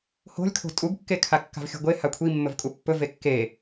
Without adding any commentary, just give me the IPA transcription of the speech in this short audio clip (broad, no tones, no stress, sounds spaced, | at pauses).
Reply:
h o̤ lʲ kʰ o̤ tʼ u ɡ kː e kʰ a kː a̤ v xʲ ṳ ɡʷ e h a kʷʰ i mː ɵ v kʼ u pː ɵ v e kː e